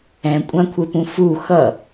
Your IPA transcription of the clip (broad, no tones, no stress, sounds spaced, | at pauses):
ɛ̃ kʷʼ ã kʷʰ e p ũ f u x ʌ